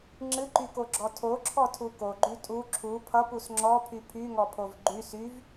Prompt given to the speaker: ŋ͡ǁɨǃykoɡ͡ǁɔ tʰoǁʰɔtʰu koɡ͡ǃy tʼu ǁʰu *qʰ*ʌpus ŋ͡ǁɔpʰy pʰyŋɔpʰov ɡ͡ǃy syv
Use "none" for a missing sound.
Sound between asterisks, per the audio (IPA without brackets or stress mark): pʰ